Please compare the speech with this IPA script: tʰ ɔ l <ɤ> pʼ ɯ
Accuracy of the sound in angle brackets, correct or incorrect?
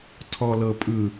correct